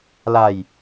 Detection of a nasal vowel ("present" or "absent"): absent